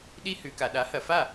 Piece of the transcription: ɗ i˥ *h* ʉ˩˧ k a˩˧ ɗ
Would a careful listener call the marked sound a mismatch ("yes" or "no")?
no